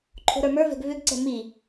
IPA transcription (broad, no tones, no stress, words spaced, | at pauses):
ǃʰo̤ɾə˞mə˞vɛ̤ɡ vʏɡǀɛ̤ mi